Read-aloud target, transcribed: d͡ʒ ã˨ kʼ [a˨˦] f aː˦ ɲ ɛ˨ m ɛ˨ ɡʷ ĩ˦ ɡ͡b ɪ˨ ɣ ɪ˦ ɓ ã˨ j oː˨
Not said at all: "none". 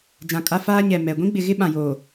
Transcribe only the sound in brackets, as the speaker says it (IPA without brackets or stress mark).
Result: a˦